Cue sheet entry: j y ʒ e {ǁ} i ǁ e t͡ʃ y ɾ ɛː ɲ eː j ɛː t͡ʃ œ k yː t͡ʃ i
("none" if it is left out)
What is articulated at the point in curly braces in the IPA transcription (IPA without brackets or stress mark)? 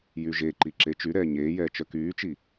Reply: ǃ